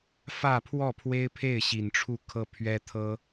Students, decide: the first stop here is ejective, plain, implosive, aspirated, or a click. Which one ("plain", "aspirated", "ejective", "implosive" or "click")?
aspirated